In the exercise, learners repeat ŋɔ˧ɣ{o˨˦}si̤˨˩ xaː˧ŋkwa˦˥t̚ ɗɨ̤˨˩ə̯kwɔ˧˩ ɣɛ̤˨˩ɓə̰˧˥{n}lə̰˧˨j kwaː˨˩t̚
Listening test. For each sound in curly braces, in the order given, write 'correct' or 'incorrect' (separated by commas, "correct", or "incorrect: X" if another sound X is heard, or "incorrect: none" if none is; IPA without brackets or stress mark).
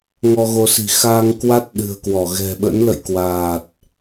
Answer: correct, correct